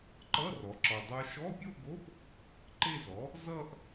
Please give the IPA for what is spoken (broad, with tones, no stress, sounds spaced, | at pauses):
ǃ ʌ˧˥˧ r ɔ˩˥ ǁ ɔ˨˩ dˤ o˦˥ ʃ ɔ˧˥˧ pʲ o˥˧ ɡ o˧˥˧ p | ǃ e˥˧ z ɔ˩˥ | z ʌ˥˧ ʔ